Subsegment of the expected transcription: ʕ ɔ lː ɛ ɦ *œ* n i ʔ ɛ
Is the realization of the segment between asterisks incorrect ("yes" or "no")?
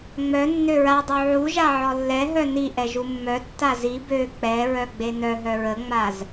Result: no